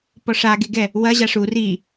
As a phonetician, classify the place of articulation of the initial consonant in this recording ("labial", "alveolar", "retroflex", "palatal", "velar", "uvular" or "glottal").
labial